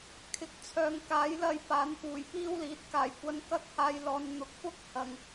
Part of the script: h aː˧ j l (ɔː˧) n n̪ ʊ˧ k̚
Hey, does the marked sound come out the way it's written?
yes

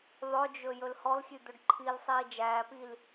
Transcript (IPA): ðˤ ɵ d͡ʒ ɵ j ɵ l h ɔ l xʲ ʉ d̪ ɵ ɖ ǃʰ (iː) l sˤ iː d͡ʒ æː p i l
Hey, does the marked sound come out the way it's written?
no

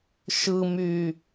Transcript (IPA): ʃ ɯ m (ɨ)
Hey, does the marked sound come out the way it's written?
no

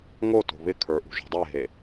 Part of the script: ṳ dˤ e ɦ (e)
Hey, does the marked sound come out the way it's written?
yes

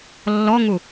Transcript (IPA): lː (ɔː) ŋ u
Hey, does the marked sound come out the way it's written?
no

